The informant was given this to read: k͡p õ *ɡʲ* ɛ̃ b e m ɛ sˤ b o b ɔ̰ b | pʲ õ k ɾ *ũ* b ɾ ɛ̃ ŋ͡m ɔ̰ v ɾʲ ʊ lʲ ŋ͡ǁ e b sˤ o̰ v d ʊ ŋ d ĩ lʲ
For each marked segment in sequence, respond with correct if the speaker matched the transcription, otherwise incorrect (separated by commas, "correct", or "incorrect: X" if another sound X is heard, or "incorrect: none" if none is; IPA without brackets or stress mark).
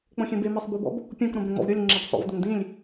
incorrect: xʲ, incorrect: õ